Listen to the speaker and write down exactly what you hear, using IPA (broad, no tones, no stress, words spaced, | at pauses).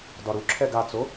dɒɾuǁʰɛɡ at͡so